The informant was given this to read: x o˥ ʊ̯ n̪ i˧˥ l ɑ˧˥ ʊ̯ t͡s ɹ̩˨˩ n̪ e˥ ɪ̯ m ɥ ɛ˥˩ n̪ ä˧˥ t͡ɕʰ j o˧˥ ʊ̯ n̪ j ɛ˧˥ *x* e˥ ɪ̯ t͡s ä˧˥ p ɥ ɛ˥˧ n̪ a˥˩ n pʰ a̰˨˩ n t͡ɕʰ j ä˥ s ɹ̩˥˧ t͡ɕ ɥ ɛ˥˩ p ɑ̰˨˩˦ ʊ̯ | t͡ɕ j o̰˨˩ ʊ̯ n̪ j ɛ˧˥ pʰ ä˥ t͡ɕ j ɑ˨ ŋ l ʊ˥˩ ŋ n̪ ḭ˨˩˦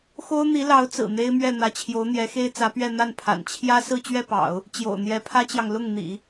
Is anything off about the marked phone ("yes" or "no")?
no